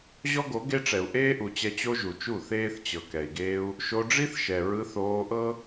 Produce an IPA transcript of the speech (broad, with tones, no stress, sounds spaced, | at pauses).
ʑ ɔ˦ ɡ o˨˦ ɡ e˦ ʈ͡ʂ ɛ˨ u̯ ʔ eː˦ ʔ u˨ t͡ɕ ɛ˧ t͡ɕ o˦ ʒ u˨ t͡ʃ u˦˨ θ eː˦ θ t͡ɕ ɤ˨ k ɛ˨ i̯ ɡ eː˦ u̯ | ʃ o˧ ɖ͡ʐ i˦ θ ʃ ɛ˨ ɹ ɯ˧ θ oː˧ ʔ ɤ˦